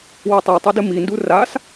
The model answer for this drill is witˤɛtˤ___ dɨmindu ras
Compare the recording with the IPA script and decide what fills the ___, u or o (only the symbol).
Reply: o